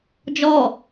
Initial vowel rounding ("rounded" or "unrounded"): rounded